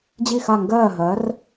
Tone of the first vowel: falling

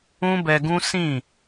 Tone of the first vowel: high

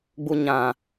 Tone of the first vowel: low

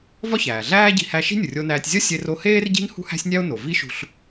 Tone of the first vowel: high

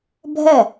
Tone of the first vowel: falling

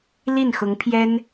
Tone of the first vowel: falling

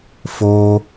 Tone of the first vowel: high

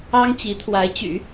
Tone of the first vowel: high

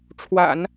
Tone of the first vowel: low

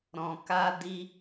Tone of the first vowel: low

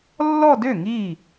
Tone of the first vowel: falling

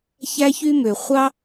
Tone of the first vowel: high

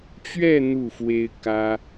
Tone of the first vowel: falling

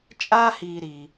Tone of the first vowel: high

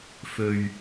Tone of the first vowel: low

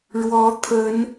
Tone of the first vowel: rising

